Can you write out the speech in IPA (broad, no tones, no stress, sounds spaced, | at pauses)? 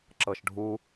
ǁ ɤ ʃ ɖʱ u